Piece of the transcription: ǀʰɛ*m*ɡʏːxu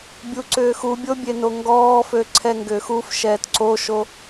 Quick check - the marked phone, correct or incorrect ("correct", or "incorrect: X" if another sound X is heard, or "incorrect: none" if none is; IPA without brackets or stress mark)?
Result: incorrect: ŋ